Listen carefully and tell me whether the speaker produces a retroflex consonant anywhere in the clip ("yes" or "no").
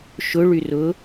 yes